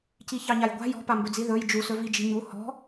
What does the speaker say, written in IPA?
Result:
c i ç ɑ ɲ a j ɡʷ a̤ j ɔ̤ p a m b ɵ d͡z i ð ɵ j d͡ʒ u s ɵ v i d͡ʒ i̤ ɲ u h ɔ̤

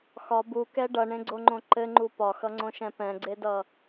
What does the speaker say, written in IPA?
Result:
x ɒ b u k ɛ ɖ ʌ ɳ ẽ ɡ͡ǀ o ŋ͡ǃ õ ǃ ɘ ŋ͡ǃ u p ɒ x ʌ ŋ͡ǀ õ ʃ ɛ̃ p ɛ̃ ɡ͡ǀ e d ʌ

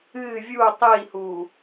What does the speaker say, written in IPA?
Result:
ɨ vʲ u tˤ i h u

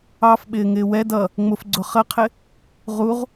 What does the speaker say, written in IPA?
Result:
ɑ f ɓ ɪː ŋ ɪː w ɛ d ʌ | ŋ͡m ʊ f ɡ͡ǀ ʊ χ ə qʰ ɪ | ʁ u ʁ

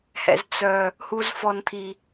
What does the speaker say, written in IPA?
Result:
h ɛ̰˨ z t͡s œ˨ | h u˨ z f ɔ˨ n t̪ʰ i˨

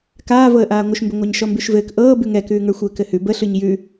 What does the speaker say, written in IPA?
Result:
k aː v ɤ ə̯ ʔ aː ŋʷ ə ʃ m b ə ŋʷ a ɲ ʃ ɔ m b ʉ ʃ v ɘː k ʔ ɤː b ʉ ŋ ɛ k ʉː ŋ ə˞ xʷ ɘː k ɘ h ʉ b ə ɬ ʉ ɲ j ʉ

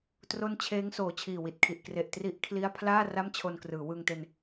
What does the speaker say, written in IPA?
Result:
t r o˥˩ n t͡ɕʰ eː˦˥ ŋ s oː˨˩ t͡ɕʰ iː˨˩ w i˨˩ t̚ kʰ i˨˩ ʔ k r e˨˩ ʔ t r i˦˥ ʔ kʰ l i˥˩ a̯ pʰ l aː˥˩ r a˥˩ m t͡ɕʰ o˧ n k r ɯː˩˦ w ɯː˧ ŋ t e˧ n

